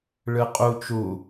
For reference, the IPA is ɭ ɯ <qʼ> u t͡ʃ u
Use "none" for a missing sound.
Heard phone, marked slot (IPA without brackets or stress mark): qʼ